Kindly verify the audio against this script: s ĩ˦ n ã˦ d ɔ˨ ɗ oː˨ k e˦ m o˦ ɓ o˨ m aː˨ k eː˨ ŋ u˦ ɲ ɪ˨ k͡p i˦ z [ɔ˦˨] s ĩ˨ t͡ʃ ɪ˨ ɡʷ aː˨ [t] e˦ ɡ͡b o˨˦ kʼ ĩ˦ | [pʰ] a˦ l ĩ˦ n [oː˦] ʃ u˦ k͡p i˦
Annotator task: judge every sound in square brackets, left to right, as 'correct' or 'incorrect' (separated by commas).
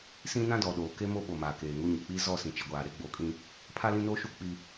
correct, incorrect, correct, correct